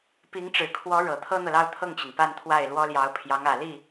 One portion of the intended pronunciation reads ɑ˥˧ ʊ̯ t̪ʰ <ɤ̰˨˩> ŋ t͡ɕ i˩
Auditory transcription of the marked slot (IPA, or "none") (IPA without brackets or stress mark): ɤ˥˩